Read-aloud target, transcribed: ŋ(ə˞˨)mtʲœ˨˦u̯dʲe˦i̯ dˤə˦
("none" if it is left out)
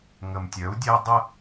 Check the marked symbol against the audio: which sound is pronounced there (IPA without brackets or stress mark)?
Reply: ə˨